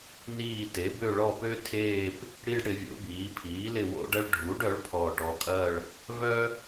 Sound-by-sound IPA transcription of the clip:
n iː˦˨ t e˩˥ b ø˦˨ ɭ ɔ˦˨ p ø˥ tʰ eː˦˨ p | ɽ i˥ ɖ ɽ ɪ˩˧ vʲ o̰˩˧ b iː˩˧ pʰ iː˩˥ l ɪ˦˨ w o̰˥ ɖ ɐ˥ ɭ ɖʱ u˩˥ ɖ œ˩˥ ɭ pʰ ɔː˨˩ ʈ ɔ˨˩ kʼ ɐ˦˨ ɭ | v œ˥

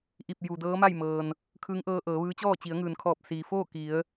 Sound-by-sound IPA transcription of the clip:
ʔ i˧˩ p̚ j u˩ d ɤː˧˥ m a˥˨ j m ɤː˩ n | kʰ ɯː˧˥ ŋ ʔ ɤː˧ ʔ ɤː˩˧ ʋ ɯː˧˥ t͡ɕ ɔː˥˨ t͡ɕ i˩˧ ə̯ ŋ ɯː˩ n kʰ ɔː˧˩ p̚ s iː˩ f oː˥˨ k i˩˧ ə̯

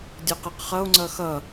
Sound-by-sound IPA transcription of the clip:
dʲ ʌ q e q χ ʌ o̯ ŋ͡ǀ ʌ x ʌ

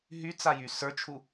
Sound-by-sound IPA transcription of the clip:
ɦ y t͡s a j y s ə˞ t͡ʃʰ u

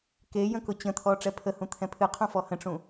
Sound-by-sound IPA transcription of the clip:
k e j ə̃ k ʊ t͡ɕ ə̃ t̪ʰ ɔ ʈ͡ʂ ɛ pʰ ə h ũ t̪ʰ ɛ̃ pʰ ɨ qʰ ũ f ɔ h ə̃ ʈ͡ʂ ũ

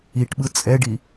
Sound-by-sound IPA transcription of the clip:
i ʈ ɓ ɯ t͡sʼ ɛ ɖ i

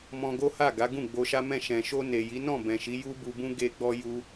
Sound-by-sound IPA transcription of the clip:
m ɔ̃˧ ɡ o˦ h a˦˨ ɡ a˨˦ ɡ ũ˦˨ ɡ͡b o˧ ʃ a˦ m ɛ̃˦˨ ʃ ɛ̃˨ ʃ o˧ n e˨ j i˨˦ n ɔ̃˦˨ b ɛ̃˨ ʃ i˨˦ j u˦ b u˧ b ũ˦ ɡ e˧ ɡ͡b ɔ˧ j u˦

